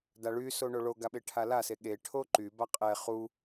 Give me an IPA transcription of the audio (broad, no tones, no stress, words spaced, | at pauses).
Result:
daɭyso ɳoɭoɡa ɓeʈʰalase ɠe ʈʰoǃy baqʼɛ χu